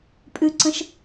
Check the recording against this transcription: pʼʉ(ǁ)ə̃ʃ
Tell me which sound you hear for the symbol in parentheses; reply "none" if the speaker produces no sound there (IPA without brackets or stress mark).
ǀ